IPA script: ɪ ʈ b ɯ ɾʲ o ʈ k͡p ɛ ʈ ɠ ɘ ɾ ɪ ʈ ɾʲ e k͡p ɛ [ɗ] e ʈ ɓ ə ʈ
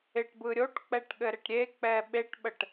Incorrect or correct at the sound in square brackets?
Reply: incorrect: ɓ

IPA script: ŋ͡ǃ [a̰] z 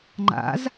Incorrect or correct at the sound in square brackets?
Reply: correct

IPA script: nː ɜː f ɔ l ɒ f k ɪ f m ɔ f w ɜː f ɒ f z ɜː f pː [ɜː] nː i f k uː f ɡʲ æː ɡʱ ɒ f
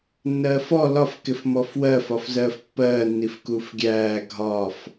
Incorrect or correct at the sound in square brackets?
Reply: correct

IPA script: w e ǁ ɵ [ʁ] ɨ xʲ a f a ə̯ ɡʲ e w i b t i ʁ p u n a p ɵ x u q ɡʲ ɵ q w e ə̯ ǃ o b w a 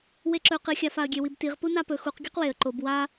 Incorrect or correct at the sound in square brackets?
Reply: incorrect: q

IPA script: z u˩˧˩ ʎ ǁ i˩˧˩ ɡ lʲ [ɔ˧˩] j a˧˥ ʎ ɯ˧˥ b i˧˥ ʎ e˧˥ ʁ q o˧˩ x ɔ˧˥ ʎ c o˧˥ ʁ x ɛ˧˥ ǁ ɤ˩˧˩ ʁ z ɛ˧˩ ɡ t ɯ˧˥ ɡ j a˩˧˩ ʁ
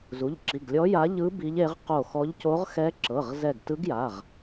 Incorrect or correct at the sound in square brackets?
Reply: incorrect: ɔ˧˥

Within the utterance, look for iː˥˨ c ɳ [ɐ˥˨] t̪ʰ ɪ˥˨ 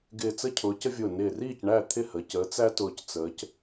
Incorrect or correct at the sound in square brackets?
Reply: incorrect: æ˥˨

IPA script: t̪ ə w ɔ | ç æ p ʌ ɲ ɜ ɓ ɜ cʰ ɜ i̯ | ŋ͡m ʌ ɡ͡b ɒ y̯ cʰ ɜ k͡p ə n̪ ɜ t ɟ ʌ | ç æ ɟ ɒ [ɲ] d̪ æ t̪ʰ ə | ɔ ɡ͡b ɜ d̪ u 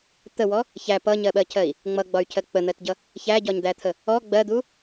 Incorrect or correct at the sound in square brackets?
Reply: correct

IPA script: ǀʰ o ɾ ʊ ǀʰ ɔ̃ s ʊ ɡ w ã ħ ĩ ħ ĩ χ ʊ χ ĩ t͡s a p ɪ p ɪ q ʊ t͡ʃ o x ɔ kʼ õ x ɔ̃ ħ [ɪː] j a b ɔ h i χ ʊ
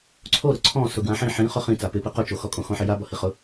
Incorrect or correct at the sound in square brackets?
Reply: incorrect: ɪ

